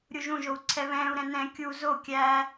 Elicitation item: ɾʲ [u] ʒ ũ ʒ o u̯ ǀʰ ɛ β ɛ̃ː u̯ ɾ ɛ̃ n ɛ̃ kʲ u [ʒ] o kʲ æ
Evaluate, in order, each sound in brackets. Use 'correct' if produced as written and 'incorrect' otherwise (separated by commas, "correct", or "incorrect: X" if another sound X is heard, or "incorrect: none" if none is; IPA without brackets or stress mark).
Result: correct, incorrect: z